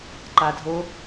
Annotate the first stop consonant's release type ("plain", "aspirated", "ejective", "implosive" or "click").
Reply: click